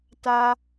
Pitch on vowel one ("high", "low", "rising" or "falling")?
high